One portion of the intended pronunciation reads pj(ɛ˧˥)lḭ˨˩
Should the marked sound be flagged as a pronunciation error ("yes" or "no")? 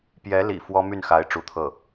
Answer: no